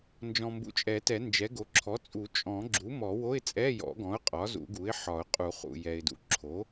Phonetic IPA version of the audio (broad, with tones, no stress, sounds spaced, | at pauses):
n d͡ʒ ɔ̃˨ m b ṵ˨ t͡ʃʼ ɛ˨˩˦ t ɛ˨˩˦ n d͡ʒ ɛ˩˥ ɡ o˩˥ ǁʰ ɔ˩˥ t͡sʼ u˨˩˦ t͡ʃʼ ɔ̃˨˩˦ ɡ͡ǁ u˩˥ m ɔ˨˩˦ w o˧˥˧ ɪ̯ t͡sʼ ɛ˧˥˧ j ɔ̰˨˩˦ ɡ ɔ̃˩˥ ʊ̯ qʼ ɒ˩˥ z ṵ˨˩˦ ɡ u˩˥ ɪ̯ ħ ɒ˨˩˦ ʊ̯ qʼ u˨˩˦ χ ṵ˨ j ɛ˨ ɪ̯ d ṵ˩˥ ǁʰ o˩˥